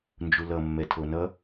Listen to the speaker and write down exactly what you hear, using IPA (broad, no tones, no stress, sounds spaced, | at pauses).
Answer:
n d͡ʒ u l ʌ mː ɛ tʰ o n ʌ